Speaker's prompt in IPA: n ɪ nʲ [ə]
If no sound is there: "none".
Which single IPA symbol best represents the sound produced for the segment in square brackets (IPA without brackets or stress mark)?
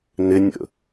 ə̰